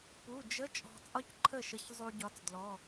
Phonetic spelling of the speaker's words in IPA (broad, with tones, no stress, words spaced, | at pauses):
pu˩˧˩d͡ʒə˧˥˧ t͡ʃʼɔ̤˧t͡sʼɒ˥cǃʰə˥˩ʃə˨˥ç zˤu˧ɟɒ˨˥t͡sdlɔ˩˧˩